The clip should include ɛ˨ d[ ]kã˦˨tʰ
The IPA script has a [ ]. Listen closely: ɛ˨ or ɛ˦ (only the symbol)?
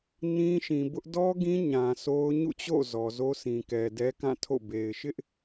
ɛ˦